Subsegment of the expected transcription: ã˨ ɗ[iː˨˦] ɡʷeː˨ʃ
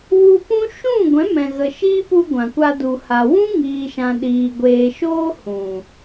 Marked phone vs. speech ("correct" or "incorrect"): incorrect